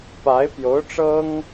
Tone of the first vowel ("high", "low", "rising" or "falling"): rising